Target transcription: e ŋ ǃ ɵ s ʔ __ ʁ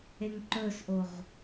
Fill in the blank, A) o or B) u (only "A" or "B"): A